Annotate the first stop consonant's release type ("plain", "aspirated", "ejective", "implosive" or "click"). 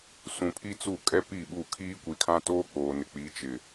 aspirated